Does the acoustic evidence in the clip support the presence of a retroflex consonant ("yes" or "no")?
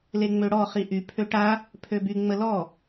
yes